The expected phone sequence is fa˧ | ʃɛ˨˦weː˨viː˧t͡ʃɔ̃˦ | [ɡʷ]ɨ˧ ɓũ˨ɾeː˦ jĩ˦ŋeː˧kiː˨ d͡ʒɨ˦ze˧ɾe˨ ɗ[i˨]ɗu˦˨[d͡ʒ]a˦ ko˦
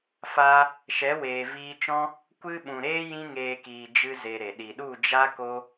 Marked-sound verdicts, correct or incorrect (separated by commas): incorrect, correct, correct